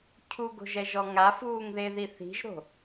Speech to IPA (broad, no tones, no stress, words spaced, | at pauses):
cʰuɡo̤ʒɛʒɔ ŋafuːŋðeði θi̤ʒɾo̤